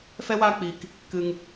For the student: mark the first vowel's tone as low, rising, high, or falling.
high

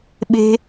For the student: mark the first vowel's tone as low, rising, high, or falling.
high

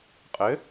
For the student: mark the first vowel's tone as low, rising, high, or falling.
rising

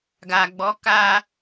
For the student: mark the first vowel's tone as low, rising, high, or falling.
low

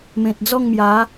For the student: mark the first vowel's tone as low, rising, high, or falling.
low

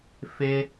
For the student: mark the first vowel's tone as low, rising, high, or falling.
high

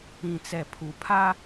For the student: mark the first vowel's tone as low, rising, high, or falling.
low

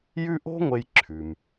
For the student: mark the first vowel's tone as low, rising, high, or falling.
high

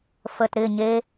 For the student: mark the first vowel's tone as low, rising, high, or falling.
low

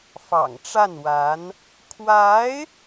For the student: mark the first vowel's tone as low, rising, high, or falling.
low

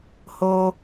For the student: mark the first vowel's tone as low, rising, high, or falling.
high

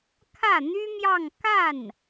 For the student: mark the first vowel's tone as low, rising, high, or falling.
falling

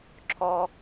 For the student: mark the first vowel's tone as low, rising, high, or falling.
high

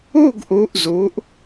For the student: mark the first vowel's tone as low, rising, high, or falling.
falling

